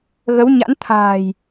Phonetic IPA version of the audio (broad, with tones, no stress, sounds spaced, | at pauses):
ɣ ə˨˦ w ɲ a̰˧˥ n t̪ʰ a̤ː˨˩ j